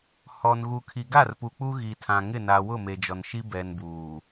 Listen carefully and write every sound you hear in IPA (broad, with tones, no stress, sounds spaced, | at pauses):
h ɔ˨ n ɣ u˨ kʰ i˨ ɡ a˦˨ r p u˨ k͡p u˦ ɣ i˨ tʰ ã˨ ŋ ɪ˦˨ n a˨ w ʊ˦˨ m e˨ d͡ʒ ɔ˨ n ʃ i˦ b ɛ˨ n b uː˨